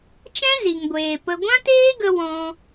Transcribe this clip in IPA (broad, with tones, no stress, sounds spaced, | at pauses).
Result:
t͡ʃ ɛ̃˦ z i˨ ŋ ɡʷ eː˨ p ə˧ ɡʷ ã˦ t eː˦ ɡ ə˧ w ɔ̃˧